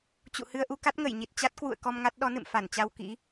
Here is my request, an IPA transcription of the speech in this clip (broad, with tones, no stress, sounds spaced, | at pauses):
t͡ɕ ṵ˧˨ h ɨ˧ ə̯ ʔ u˧ k a˦˥ t̚ ŋ ə˧˩ j ɲ i˨˩ t̚ t͡ɕ a˦˥ t̚ k w ṵ˧˨ ə̯ k ɔ˧ m ŋ a˦˥ t̚ ɗ ɔ˨˦ n ɨ̰˧˨ m f a˧˩ n t͡ɕ a˧ w k ḭ˧˥